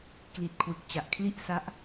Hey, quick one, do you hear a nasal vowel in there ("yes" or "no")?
no